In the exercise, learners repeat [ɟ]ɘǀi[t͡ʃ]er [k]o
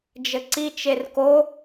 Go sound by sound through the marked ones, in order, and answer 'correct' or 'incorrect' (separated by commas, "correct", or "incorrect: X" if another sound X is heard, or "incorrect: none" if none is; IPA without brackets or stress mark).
incorrect: d͡ʒ, correct, correct